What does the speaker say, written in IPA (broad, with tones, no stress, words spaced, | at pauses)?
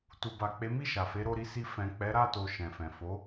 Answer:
tu˨ba˨k͡pe˨˦ mi˦˨ʃa˨fe˨˦ ɾo˧ɾi˧si˧ fɛ̃˨k͡pɛ˨˦ɾa˦˨to˨ ʃɛ̃˨fɛ̃˨ fo˨˦